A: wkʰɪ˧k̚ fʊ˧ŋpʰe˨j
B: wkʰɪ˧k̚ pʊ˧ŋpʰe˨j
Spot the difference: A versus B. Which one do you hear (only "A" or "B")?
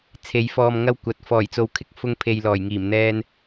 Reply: A